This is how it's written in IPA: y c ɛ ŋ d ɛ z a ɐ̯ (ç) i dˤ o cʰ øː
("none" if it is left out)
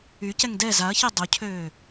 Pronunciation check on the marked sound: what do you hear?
ç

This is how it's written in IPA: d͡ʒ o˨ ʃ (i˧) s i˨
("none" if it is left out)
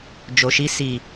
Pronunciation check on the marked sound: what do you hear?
i˧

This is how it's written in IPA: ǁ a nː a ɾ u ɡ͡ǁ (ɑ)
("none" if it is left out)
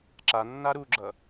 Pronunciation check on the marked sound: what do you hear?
ʌ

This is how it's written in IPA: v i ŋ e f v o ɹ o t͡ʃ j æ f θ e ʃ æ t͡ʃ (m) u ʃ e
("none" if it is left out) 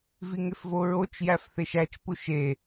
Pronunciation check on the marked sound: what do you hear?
p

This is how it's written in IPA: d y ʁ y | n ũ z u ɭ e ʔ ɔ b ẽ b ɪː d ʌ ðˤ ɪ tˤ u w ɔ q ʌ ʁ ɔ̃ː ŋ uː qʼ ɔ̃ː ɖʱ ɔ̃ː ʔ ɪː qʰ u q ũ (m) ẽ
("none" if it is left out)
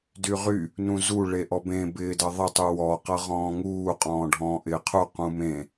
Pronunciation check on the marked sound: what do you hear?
m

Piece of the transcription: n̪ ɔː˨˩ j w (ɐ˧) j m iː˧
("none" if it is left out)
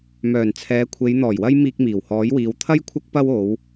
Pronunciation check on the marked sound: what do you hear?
ɐ˧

